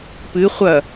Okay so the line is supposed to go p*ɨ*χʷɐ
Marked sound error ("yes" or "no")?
no